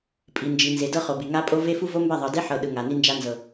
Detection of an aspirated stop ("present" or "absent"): absent